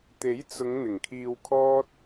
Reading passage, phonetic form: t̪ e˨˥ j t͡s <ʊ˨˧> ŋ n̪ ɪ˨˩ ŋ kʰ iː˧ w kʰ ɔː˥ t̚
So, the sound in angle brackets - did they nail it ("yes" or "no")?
yes